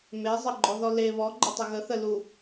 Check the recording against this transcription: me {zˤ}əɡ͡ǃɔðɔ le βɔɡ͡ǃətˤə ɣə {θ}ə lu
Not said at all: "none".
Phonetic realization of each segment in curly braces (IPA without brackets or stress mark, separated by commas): zˤ, θ